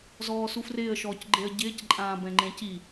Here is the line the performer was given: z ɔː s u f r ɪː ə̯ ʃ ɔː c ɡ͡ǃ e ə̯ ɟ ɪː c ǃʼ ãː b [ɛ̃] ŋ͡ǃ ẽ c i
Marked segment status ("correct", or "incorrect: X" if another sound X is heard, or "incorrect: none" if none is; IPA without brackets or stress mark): correct